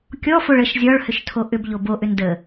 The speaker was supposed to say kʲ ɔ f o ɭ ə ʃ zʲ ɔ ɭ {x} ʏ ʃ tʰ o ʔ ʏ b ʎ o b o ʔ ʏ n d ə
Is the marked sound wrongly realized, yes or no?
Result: yes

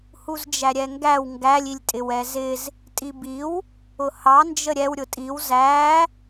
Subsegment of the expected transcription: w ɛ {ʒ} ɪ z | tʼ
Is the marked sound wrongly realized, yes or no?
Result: yes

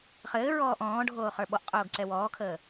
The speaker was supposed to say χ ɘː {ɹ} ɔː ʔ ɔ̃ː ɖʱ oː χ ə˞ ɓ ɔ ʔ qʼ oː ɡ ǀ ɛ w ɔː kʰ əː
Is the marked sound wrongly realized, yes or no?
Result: no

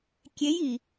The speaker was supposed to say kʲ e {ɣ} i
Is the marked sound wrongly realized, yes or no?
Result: yes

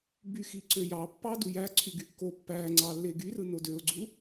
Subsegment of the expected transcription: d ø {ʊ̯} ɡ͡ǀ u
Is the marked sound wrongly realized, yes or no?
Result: no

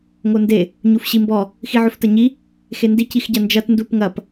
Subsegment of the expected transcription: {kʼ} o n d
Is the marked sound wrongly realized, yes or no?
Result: yes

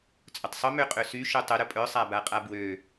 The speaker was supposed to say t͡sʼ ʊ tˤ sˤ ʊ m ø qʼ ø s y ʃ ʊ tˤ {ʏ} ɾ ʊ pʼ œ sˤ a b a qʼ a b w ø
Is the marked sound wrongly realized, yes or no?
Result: no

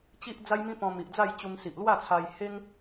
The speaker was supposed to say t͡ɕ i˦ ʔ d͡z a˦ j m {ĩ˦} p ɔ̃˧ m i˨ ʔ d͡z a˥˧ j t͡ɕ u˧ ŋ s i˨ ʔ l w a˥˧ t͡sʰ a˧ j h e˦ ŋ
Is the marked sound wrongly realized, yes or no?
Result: no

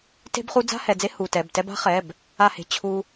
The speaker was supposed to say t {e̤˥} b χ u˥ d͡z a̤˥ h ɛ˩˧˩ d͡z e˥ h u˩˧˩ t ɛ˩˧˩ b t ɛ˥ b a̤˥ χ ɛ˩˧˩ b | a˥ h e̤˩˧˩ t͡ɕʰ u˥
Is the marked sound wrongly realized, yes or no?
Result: no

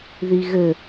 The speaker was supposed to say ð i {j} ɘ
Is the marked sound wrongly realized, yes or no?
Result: yes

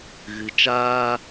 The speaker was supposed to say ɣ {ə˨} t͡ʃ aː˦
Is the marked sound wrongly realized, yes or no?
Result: yes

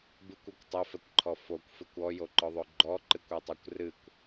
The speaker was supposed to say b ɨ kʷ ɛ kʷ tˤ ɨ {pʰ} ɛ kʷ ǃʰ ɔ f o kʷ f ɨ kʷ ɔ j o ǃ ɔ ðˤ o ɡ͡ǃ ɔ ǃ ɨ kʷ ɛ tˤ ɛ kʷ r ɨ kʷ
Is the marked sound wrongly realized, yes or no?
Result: yes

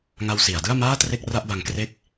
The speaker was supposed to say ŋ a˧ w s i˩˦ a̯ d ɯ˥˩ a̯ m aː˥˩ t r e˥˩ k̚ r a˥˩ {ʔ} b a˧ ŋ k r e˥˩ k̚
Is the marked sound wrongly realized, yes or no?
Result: no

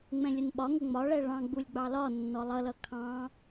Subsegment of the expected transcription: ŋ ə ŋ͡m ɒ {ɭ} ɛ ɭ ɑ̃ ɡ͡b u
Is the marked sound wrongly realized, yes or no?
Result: no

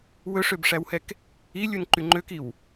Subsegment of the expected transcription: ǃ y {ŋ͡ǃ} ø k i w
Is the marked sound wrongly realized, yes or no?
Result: no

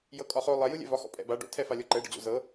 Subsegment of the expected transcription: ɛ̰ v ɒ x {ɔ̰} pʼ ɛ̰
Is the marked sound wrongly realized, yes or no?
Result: no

